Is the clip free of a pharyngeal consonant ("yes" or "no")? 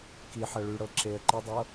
no